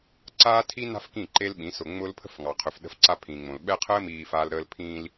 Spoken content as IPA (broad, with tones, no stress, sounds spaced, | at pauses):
ǀ aː˦ tʰ i˦ n a̤˦ f k ĩ˦˨ ǃ e˦ l ɓ ĩ˨˦ s ʊ˨ ŋ͡m ʊ˦ l pʰ ə̤˦ f ŋ ɑ˨ qʰ ʏ˨ f ɗ ə̤˦ f ǀ a˦ pʰ ĩː˨ ŋ͡m õ˨ l ɓ ɛ˦ qʰ əː˦ m iː˨ f aː˦ l ɾ əː˦ l pʰ ĩː˦ l